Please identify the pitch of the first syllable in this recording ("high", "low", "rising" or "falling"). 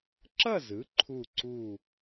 falling